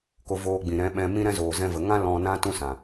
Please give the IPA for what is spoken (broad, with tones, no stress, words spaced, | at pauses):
ko˧voː˧ɡ͡bĩ˨ ɾɛ̃˨˦ɓɛ̃˧ mĩ˦ɾɛ̃˦ zoː˨zɛ̃˧və˨ŋã˦ lɔ̃˧nã˦ tũ˦sã˨